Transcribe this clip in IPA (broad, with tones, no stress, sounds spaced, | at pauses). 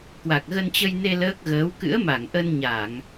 k w a˨˩ k̚ ɣ ə˧ n t͡ɕ ə˧ j n e˧ l əː˦˥ k̚ ɣ əː˨˦ w k ɨ̰˧˥ ə̯ m a˧˩ ŋ ʔ ə˧ n ɲ a˧˩˨ ŋ